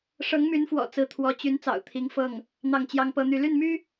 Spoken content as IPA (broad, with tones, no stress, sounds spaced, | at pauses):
ʂ ɤ˧˥ ŋ m y˧˥ n f w ɔ̰˨˩ t͡s ɹ̩˧˥ t̪ʰ w ɔ˧˥ t͡ɕ y˧˥ n t͡s ɑ̰˨˩ ʊ̯ t̪ʰ i˧˥ ŋ f ɤ˥˩ ŋ | n̪ ɑ˥˩ ŋ t͡ɕ j ɑ˥ ŋ p ɤ˥ n̪ y˥˧ l y˥˩ n m y˥